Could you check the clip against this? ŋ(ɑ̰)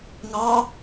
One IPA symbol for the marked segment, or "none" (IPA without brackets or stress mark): ɑ